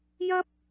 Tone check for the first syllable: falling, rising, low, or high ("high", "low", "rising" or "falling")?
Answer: high